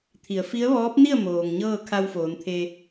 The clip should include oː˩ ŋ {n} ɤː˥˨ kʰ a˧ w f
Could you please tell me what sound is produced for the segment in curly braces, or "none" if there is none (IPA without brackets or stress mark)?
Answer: ɲ